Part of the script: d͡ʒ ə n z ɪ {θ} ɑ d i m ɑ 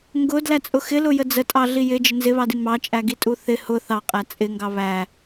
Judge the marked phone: incorrect: β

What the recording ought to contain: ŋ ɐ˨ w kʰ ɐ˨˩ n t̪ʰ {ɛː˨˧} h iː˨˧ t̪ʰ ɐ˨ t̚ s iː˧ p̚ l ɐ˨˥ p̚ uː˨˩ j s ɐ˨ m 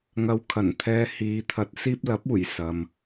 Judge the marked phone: incorrect: ɛː˧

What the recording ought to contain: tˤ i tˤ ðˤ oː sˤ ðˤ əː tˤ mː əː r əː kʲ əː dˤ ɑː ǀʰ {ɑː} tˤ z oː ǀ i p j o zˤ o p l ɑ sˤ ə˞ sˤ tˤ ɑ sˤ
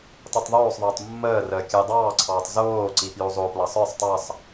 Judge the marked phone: correct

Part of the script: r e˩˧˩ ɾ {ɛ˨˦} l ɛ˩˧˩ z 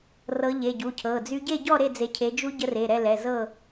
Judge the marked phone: incorrect: ɛ˥˨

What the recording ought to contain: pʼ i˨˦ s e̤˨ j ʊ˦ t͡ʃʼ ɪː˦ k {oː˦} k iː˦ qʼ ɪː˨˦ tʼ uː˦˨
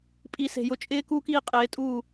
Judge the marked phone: incorrect: uː˦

